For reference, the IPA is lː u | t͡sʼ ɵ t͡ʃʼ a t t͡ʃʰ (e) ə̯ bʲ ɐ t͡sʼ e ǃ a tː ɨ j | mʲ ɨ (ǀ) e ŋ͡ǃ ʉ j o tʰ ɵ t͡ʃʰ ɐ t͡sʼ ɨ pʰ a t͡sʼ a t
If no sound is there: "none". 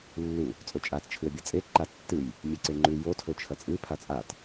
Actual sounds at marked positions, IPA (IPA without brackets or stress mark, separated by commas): ɨ, ǀ